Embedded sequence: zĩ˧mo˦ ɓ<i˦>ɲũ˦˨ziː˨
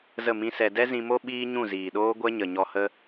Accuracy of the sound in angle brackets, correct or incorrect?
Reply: incorrect